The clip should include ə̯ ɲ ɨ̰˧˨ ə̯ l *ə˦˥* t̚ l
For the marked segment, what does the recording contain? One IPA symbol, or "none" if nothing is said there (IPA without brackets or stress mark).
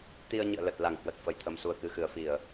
ə˨˩